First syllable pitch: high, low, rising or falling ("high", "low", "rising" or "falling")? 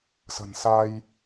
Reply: low